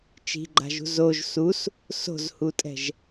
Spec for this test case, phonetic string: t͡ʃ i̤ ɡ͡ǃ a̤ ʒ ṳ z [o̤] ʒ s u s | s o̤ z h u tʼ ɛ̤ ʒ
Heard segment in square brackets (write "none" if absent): o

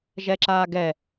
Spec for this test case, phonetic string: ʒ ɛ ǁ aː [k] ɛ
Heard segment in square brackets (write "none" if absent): ɡ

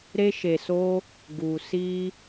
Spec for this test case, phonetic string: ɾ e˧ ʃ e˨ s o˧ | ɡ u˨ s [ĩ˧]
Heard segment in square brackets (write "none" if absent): i˧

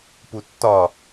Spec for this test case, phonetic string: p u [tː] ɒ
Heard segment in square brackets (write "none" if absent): tː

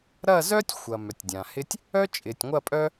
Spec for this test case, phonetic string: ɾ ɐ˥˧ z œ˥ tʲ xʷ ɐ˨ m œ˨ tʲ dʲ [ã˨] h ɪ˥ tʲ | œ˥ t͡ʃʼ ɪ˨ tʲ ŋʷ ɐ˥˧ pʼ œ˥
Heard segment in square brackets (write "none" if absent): ã˨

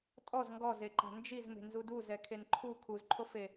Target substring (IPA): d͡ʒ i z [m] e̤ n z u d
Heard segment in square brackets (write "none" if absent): m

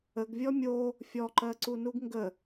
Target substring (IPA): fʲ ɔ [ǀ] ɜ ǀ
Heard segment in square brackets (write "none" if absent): ǃ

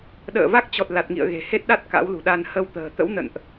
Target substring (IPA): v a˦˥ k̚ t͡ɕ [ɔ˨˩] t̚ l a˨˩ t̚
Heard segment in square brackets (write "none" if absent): ɔ˨˩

